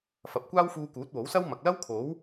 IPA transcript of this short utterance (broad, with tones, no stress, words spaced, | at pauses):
fɐ˨p̚kʷaː˥wfuː˧ kuː˨˥t̚wo˨˥wsɐ˥w mɐ˨k̚ lɐ˥wkʰo˨˥w